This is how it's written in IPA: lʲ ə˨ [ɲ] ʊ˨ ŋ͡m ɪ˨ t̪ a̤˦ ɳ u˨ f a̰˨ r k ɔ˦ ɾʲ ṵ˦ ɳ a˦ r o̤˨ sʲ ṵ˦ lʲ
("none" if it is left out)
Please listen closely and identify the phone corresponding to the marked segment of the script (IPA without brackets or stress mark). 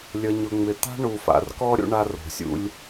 ɲ